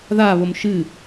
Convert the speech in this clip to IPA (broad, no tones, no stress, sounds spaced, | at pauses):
ð a β o m ʃ ɨ